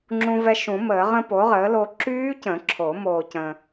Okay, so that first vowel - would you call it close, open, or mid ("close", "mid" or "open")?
close